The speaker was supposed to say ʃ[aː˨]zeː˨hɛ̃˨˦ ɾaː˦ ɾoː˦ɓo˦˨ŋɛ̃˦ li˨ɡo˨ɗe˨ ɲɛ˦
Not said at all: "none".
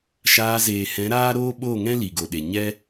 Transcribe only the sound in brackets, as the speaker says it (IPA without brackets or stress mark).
aː˧